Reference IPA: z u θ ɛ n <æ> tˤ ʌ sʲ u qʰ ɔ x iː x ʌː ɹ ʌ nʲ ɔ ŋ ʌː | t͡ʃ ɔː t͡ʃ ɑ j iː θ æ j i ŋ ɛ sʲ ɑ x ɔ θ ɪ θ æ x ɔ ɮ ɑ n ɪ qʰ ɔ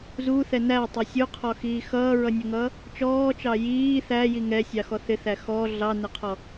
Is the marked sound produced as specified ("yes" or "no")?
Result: yes